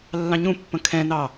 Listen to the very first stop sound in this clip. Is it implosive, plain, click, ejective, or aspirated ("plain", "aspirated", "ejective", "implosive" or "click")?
plain